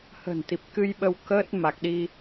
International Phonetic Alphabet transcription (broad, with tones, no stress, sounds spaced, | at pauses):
h ə̤˨˩ n t̪ i˨˩ p̚ k ɨ˧ j ɓ ə˧ w k əː˦˥ t̚ m a˨˩ k̚ ɗ i˧